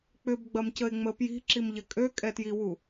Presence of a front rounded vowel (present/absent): present